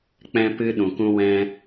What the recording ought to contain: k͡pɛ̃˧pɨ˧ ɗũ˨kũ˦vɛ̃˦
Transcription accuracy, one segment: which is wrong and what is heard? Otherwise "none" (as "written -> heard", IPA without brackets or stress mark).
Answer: v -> w